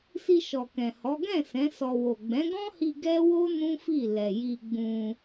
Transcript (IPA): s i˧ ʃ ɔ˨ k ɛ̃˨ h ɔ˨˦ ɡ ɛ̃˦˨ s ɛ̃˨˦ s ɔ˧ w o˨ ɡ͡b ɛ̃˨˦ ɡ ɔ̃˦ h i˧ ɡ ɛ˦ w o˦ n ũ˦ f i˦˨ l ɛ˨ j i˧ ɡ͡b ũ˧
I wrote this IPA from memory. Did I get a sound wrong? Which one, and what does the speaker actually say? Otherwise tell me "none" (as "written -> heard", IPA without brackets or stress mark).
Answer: none